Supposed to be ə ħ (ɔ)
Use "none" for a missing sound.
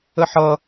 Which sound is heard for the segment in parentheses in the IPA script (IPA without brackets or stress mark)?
ʌ